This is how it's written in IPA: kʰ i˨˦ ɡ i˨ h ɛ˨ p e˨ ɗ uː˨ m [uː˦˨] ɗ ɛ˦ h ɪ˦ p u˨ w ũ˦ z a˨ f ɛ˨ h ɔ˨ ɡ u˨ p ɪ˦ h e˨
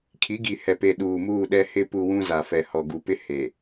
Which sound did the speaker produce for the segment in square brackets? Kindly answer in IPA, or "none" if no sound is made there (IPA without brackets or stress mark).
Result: uː˦˨